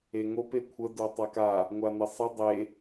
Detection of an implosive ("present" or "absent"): absent